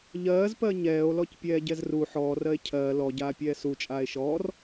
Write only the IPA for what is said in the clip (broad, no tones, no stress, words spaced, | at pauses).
ʎɜːzpɜ ɲɛːo̯lɔcpʲɛːɟɛz ru ħɔːrɜe̯ cʰɜː lɔɟaːpʲɛː sut͡ʃʼaːe̯ ʃɔːr